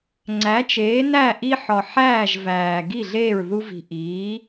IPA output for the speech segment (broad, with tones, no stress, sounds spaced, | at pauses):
ŋ͡ǀ æ˩˥ t͡ʃ eː˩˥ n æ˥˩ ʔ i˦ ħ ɒ˨˩ ħ æː˥˩ ʒ v æː˨˩ ɡ i˥˩ ɮ eː˥˩ ɹ ð u˦ v i̤˨˩ ʔ iː˩˥